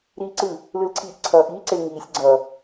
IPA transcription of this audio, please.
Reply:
ɾ iː ǀ ɯ | l ɯ l ǀʰ iː ʔ ǀʰ ʌː ʔ iː ǀ ɪ l ŋ iː sʲ ɡ͡ǀ ʌ

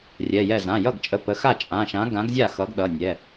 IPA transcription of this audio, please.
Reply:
rʲ ɛ˩˧˩ j ɛ˥˩ z ã˩˧˩ j ʌ˥˩ ɡ t͡ʃʼ ə˨˥ p ə˩˧˩ x a˥˩ t͡ʃʼ ã˩˧˩ ʃ ã˨˥ ɡ ã˨˥ ɡ zʲ a˥˩ x ʌ˨˥ ɡ ɗ ʌ˩˧˩ nʲ ɛ˩˧˩

